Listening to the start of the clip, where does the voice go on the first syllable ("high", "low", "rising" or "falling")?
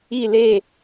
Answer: falling